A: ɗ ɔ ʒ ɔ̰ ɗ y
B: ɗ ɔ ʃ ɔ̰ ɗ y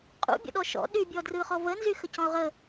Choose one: B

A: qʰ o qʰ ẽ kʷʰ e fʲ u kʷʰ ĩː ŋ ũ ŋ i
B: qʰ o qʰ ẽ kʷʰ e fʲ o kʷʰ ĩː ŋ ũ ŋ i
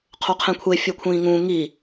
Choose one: B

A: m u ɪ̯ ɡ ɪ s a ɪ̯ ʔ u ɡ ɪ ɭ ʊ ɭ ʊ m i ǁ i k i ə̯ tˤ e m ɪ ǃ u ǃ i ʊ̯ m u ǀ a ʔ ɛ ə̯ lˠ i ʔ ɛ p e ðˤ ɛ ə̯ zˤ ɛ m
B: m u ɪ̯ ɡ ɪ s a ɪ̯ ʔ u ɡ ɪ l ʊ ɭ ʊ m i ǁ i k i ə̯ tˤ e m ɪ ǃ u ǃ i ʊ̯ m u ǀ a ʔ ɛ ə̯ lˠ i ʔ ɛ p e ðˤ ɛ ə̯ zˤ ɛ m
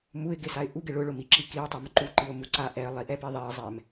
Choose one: A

